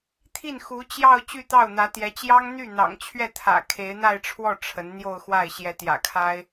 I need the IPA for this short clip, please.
t̪ʰi˥˩nxu˧˥t͡ɕjɑ˥˧ʊ̯ t͡ɕy˥˧t̪ɑ˥˩ʊ̯n̪ä˧˥t̪jɛ˧˥ t͡ɕjɑ˥ŋn̪y˥˩n̪ɑ̰˨˩ŋt͡ɕʰɥɛ˥˩ t̪ʰä̰˨˩ kʰe˧˥ɪ̯n̪a˥˧ɪ̯ʈ͡ʂʰwɔ˥˩ ʈ͡ʂʰə˧˥nn̪jo˥˧ʊ̯xwa˥˩ɪ̯ ɕjɛ˧˥t̪jä̰˨˩kʰa˥ɪ̯

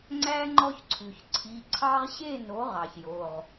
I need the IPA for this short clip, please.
ŋ͡ǀæ˦ ŋ͡ǃɔ˦çǀʰʉ˩ç ǀʰi˩˧˩ǀʰɑ˦ʁɕe˥˨no˩˥ʁ ɑ˩çjo˩˧˩ʁ

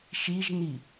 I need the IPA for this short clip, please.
ʃiʒni

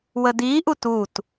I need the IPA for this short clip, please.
wədiʔut ut

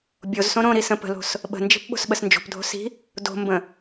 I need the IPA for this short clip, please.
bʲozsõ ɾõɾi sə̃pə̤lo̤s | ɓə̤nd͡ʒi̤p ɓo̤sɓəsnd͡ʒo̤pdʱo̤ si̤ | do̤mbə̃

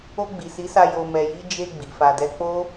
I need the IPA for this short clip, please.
o˧ɡ͡bi˨si˨˦sa˧ jo˧mɛ˧ji˦ d͡ʒe˧ ɡ͡bi˨fa˧dɛ˦ k͡po˦

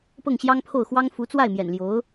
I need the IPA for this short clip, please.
pɤ˥˩ŋɕjɑ˥ŋpʰo˥˩ʊ̯xwɑ˥ŋ fu˧˥t͡swa˥˩ɪ̯mjɛ̰˨˩nljo˧˥ʊ̯

